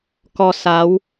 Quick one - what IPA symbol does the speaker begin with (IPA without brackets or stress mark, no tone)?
k